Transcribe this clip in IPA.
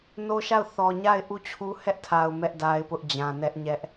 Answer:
n o˦ ʃ a˦˨ ʊ̯ θ ɔ˨ ɲ a˦˨ ɪ̯ ʔ u˦˨ t͡ɕʰ u˦ h ɛ˦ ʔ tʰ a˨ ʊ̯ m ɛ˦ ʔ d a˦ ɪ̯ p ʊ˦ ʔ d͡ʑ ã˨ n ɛ˦ ʔ ɲ ɛ˦ ʔ

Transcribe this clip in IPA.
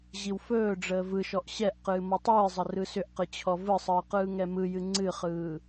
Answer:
ʑ i w f ɵː ɖ͡ʐ əː v ɯ ʃ ɔ ʔ ɕ ɛ ʔ q ɨː m ɔ tˤ ɨː zˤ ə r ɯ s ʏ ʔ q ɨ t͡ɕʰ ɔ v ɯ sˤ ɯː q ɯː ŋ ɛ m ɯ j ɨ ŋ͡ǀ ɨ χ ɯː

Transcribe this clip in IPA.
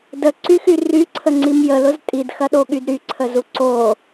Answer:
d ə ǀ y x y r y ǀʰ ə ŋ͡ǀ i m j ə l ʊ z tʼ i d x ɐ ɗ o ɠ y d ɾ y ǀʰ ə z u ǀ o

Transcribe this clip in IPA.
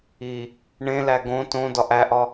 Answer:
i | ɳ ẽ l æ ɡ õ t õ d ɒ ʔ æ ʔ ɒ

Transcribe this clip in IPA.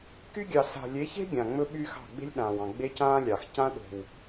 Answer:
k y˦ ɡʲ ɑ˨ s a̤˨ lʲ e˨˦ ç e̤˦ ɡʲ ã˨ ŋ͡m ɵ˦ ɓ y˦ x ɑ̤˦˨ ɡ͡b e̤˦ lʲ ɗ ãː˨ w ɑ̃˨ ɡ͡b e˦ c ãː˦ lʲ ɑ˨ x c ã˦ ɗ o̤˨ w

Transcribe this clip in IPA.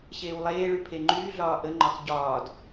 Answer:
ɕ eː w lˠ eː ɭ y pʰ e ŋ͡ǃ yː ɮ ɒː ʔ ə ŋ͡ǃ ɒ x ɟ ɒː d

